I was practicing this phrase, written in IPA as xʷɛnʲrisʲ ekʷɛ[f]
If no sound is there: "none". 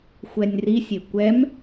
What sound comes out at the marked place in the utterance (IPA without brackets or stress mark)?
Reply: m